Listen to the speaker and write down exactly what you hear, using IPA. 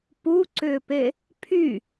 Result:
p u ǀ ʏː p e | pʰ y

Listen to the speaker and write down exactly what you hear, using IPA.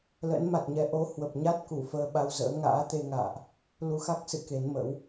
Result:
l ə̰˧˥ n m a˨˩ t̚ ɲ ɛ˧ ʔ o˨˦ h w ə˨˩ p̚ ɲ a˦˥ t̚ k u˧˩ f əː˧ ɓ a˧ w z ə̰ː˧˥ ŋ a̰ː˧˥ t̪ e˧ ŋ a̰ː˧˨ ʔ | l u˧ x a˦˥ k̚ s ɨ̰˧˨ k e˨˦ n m ə̰˧˥ w

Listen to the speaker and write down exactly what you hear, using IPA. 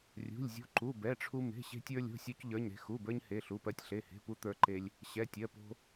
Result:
rʲ ṳ˩˧˩ lʲ zʲ o̤˧ ǃ u˩˧˩ b ɛ˩˧˩ ʈ͡ʂʰ u˧ m e̤˩˧˩ ɕ e̤˧ tʲ ə˞˧ lʲ o̤˩˧˩ sʲ o˧ c ʎ ə˞˩˧˩ ɲ ɾ e̤˧ x u˩˧˩ b ə˞˧ ɲ h e˩˧˩ ɬ u˩˧˩ p ɜ˧ tʲ ɬ e˩˧˩ h e̤˩˧˩ p u˧ t̪ ə˞˧ ǃ e˧ lʲ | ɕ ɛ˩˧˩ tʲ ɜ˩˧˩ p o̤˧

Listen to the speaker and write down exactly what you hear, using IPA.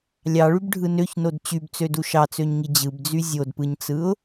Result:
lʲ ɑ ɭ y b ɖʱ ɯ n ø ç n o d t͡ɕ y b t͡s ø d u ʃ ɑ t͡s ø ɲ ŋ i d͡ʑ ɯ b d͡z y zʲ o d p ɯ ɲ t͡s ɯ ʊ̯

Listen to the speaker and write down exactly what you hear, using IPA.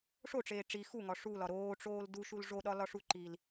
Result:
ʂ o ʈ͡ʂ eː ʈ͡ʂ i x u ŋ ɒ ʂ u l ɒ ɾ oː ʈ͡ʂ oː l d u ʃ u l ʐ o ɗ ɒ l ɒ ʂ u ǃ i l

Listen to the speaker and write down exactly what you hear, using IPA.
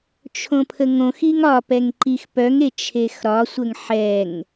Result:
t͡ʃʰ õ pʰ ə ŋ õ x i ŋ ɒ p ɛ ŋ ǃ i x p œ ŋ e t͡ʃʰ e x ɾ ɒ sʷ ə ŋ ħ ɛ ŋ

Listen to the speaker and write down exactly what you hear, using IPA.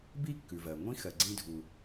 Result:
b i˥ kː ʉ˩ v ɜ˩ ŋʷ ĩ˥ x ɜ˨ ɡ͡ǀ ĩ˦ dʱ u˨

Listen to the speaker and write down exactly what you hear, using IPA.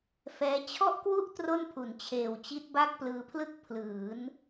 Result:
f ɛː˦˥ t͡ɕʰ ɔ˥˩ ʔ k w u˥˩ ʔ t r o˥˩ n pʰ u˨˩ n t͡ɕʰ eː˨˩ w t͡ɕ i˦˥ t̚ b a˥˩ k̚ p l ɯː˧ pʰ l ɯ˥˩ k̚ pʰ l ɯː˩˦ n

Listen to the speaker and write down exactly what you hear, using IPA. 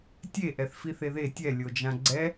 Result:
tʲ e ʔ ɛ θ f i θ e ð e tʲ ɛ lʲ o d͡ʒ ã ɡ͡ǀ ɛ

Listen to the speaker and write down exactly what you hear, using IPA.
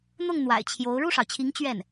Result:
n̪ ʊ˥˩ ŋ n̪ w a̰˨˩ ɪ̯ t͡ɕʰ j o˧˥ ʊ̯ ɻ u˥˩ ʂ ɑ˩ ʊ̯ t͡ɕʰ i˧˥ ŋ t͡ɕ ɥ ɛ˥˩ n

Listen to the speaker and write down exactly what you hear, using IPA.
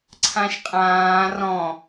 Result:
ǀʰ ã ʃ qʼ ãː r ɔ̃

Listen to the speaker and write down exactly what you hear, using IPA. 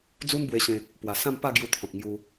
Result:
d͡z u˦ n b w e˧ ɕ ẽ˧ | p w a˨˩ s ã˥˧ m p a˥˧ ɡ j u˧ t̪ʰ ɔ̃˨ k̚ ŋ j u˧

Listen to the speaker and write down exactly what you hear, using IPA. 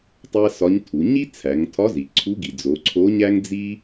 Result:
tˤ æ˥ s ɒ˧˥ ɲ tʰ u˩˧ ɲ i˥ t͡sʰ æ˩˧ ŋ tʰ ɒ˧˥ z i˩ ǀʰ u˧˥ ɡ i˩ d͡z o˩˧ ǀʰ o˧˥ ɲ æ˥ ŋ d͡z i˥

